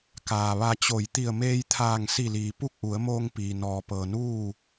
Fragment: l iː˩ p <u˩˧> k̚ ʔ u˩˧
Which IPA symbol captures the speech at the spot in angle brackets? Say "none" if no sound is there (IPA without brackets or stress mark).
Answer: u˥˨